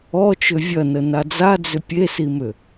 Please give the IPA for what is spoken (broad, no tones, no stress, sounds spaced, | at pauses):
ɔ t͡ʃ ʏ vʲ ɐ n ə n a d͡z a d͡z ʏ pʲ e s i m ʏ